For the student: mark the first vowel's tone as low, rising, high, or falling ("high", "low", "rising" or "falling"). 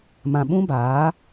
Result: low